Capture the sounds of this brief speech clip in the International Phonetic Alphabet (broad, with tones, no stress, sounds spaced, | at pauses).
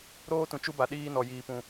ɾ oː˦ t ũ˨ t͡ʃ u˦ b a˨ ɗ iː˦ n ɔ˨ j iː˨ p ũ˨